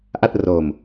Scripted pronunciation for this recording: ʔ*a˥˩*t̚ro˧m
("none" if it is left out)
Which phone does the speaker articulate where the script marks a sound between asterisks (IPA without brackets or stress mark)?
a˥˩